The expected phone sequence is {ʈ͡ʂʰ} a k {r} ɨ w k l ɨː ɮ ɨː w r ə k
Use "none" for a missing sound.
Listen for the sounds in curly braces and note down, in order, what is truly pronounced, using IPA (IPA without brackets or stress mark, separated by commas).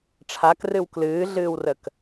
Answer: ʈ͡ʂʰ, r